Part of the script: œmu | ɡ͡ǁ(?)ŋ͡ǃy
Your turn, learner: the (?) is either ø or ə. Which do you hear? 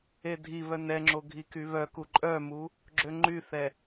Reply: ø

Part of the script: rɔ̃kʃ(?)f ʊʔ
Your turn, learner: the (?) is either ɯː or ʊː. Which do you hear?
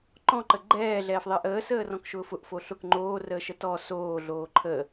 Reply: ʊː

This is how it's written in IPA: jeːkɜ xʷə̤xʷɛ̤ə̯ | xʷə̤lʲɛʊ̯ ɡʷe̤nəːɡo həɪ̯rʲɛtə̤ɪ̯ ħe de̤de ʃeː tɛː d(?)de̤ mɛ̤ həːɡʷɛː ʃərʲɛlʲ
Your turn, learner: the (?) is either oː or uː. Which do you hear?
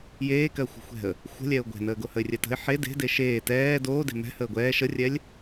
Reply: oː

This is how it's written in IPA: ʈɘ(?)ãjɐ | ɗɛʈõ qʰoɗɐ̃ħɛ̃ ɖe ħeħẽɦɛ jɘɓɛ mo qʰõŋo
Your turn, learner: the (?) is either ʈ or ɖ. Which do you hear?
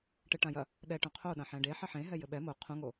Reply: ʈ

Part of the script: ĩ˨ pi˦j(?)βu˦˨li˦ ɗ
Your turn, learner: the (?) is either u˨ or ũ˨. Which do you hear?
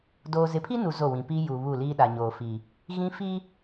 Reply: u˨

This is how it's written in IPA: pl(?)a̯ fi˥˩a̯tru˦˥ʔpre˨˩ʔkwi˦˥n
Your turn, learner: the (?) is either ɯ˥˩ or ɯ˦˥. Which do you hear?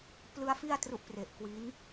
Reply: ɯ˦˥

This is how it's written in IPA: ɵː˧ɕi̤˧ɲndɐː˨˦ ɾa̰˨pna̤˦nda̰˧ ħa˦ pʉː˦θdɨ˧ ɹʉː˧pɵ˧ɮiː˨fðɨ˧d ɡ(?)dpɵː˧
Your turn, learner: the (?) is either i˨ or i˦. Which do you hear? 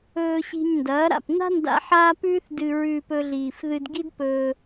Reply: i˦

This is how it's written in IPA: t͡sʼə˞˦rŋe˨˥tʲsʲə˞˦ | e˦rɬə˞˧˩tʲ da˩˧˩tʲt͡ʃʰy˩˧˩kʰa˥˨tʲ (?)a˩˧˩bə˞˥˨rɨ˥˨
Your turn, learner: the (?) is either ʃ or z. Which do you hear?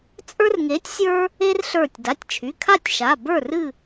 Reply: ʃ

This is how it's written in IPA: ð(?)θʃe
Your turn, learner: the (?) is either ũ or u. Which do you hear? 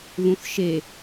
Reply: ũ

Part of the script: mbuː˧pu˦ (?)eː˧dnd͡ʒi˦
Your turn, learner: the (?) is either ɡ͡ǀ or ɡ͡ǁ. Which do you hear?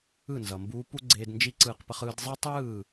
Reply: ɡ͡ǀ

